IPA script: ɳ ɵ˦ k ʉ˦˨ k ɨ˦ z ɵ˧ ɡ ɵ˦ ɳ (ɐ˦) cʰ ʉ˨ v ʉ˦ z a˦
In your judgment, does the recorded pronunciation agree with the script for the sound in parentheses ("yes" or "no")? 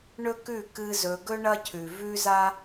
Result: yes